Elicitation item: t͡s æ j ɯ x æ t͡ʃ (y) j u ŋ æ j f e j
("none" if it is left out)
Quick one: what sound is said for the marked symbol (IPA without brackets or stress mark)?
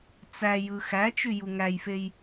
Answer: y